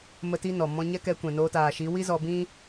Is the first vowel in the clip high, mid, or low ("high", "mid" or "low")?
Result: mid